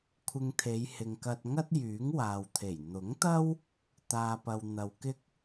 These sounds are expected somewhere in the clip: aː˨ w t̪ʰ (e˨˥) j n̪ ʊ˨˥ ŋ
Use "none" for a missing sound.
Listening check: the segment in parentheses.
e˨˩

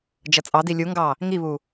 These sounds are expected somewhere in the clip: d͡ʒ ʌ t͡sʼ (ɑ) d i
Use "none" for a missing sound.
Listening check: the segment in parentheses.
ɑ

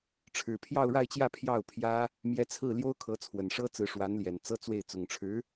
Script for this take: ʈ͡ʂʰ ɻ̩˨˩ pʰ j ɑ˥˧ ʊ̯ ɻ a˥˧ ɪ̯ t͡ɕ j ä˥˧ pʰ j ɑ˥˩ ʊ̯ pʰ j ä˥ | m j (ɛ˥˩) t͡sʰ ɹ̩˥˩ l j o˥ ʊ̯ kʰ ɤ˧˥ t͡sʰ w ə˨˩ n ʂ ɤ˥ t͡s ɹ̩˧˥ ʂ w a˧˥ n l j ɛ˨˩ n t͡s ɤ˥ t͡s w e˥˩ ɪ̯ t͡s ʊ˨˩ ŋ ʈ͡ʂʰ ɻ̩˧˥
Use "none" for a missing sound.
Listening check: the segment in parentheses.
ɛ˧˥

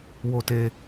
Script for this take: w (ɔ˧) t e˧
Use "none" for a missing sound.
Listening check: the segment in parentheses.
o˧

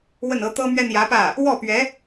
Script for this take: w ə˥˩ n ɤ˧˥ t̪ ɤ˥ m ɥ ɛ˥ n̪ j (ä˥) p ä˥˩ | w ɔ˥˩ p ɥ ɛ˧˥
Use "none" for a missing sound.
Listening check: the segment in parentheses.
ä˧˥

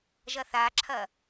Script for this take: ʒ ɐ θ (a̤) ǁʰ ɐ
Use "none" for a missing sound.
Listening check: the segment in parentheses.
a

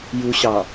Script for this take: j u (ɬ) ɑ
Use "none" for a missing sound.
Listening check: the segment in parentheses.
ɕ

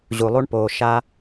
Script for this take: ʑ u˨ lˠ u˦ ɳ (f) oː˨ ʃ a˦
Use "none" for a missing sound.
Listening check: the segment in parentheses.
p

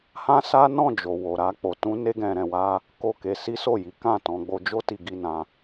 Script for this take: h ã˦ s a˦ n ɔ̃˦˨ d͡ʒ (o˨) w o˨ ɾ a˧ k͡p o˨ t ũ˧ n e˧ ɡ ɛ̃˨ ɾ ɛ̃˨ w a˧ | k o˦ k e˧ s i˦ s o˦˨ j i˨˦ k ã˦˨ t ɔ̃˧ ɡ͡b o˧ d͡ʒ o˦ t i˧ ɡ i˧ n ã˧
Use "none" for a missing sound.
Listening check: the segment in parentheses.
o˨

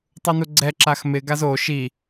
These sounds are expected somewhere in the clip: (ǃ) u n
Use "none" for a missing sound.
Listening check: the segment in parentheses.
tˤ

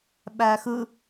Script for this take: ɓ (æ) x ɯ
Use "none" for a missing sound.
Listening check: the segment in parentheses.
æ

